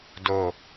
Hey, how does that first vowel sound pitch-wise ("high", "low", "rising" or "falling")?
falling